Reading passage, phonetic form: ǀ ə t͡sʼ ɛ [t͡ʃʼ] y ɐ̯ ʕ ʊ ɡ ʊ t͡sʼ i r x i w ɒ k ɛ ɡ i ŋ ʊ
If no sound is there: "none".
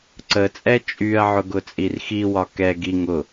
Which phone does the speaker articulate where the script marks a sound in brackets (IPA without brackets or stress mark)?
t͡ʃʼ